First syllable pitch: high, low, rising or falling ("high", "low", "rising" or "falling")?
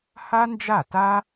high